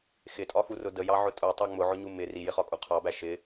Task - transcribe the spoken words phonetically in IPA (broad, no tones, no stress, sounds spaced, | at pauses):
x ɪ tʼ ɒ x u r ʊ d ə j ɑ ʕ ʊ tʼ u tˤ ɑ ŋ͡m ʊ ʕ ʊ ɲ u m ɪ r i j ɪ χ ɒ kʼ u qʰ ɑ b æ ʃ ɪ